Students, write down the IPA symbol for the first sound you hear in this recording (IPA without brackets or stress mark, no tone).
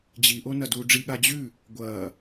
d͡ʑ